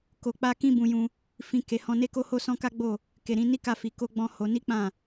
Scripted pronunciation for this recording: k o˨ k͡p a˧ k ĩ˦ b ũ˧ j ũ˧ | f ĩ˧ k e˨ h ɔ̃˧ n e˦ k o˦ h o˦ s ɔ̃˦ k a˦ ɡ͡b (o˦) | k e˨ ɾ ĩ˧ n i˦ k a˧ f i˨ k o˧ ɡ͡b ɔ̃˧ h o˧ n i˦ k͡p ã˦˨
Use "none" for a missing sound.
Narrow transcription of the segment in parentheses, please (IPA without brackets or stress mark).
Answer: o˦˨